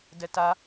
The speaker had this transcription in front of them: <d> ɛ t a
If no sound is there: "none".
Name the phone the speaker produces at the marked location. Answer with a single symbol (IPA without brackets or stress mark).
d